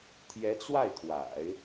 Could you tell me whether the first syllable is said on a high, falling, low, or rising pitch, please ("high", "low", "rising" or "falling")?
rising